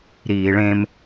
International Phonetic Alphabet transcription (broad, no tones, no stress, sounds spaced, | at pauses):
ɾ iː ɭ ẽ m